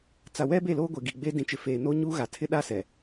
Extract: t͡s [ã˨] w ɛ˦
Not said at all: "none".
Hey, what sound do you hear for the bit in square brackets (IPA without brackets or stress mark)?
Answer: a˨